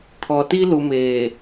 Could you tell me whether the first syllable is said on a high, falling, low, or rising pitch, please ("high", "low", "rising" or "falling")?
low